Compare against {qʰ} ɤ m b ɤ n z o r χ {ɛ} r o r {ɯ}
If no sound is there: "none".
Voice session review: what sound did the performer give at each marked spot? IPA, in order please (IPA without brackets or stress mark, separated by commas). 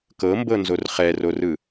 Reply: k, ɛ, ɯ